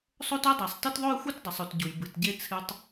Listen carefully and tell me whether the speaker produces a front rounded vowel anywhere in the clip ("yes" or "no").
yes